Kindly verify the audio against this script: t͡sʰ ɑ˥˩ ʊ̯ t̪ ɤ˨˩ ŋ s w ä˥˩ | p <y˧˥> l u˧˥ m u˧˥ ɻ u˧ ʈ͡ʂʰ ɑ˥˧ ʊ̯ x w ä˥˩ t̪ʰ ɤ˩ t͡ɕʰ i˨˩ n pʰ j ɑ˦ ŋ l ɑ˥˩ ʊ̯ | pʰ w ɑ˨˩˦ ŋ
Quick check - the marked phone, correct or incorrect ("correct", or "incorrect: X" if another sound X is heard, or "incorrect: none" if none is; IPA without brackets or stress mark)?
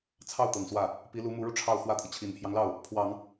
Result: incorrect: i˧˥